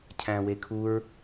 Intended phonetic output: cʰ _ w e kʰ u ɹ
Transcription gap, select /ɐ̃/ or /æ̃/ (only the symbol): æ̃